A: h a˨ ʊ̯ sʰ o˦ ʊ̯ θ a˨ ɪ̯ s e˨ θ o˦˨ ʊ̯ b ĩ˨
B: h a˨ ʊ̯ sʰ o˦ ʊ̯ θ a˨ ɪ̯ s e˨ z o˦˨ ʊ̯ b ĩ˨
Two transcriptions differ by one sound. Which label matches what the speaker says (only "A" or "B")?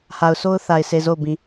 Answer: B